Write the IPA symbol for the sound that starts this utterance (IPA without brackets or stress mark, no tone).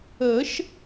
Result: ə